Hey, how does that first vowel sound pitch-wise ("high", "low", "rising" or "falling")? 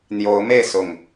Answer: rising